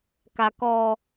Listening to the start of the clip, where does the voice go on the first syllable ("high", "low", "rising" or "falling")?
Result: low